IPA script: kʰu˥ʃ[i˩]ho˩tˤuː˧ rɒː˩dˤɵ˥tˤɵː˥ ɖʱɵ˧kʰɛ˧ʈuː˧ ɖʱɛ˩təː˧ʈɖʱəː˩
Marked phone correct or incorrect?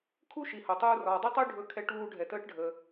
correct